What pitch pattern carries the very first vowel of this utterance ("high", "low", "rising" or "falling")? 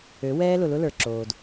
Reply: rising